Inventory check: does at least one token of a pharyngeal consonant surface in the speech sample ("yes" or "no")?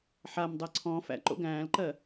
yes